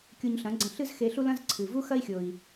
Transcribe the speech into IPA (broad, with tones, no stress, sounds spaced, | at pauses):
kʲ u˧ ɲ ɬ ɐ̃˩˥ ɡ͡ǀ ɐ̃˧ ɬ ɨ˥ z x e˧ ɬ u˥ l ɐ̃˥ z ǀʰ ɨ˩ v u˥ x ɐ˥ i̯ xʲ o˩ i̯